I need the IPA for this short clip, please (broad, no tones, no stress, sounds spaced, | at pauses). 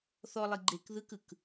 θ ɔ lˠ i ɡ͡ǃ e k ð ɯ k ɯ k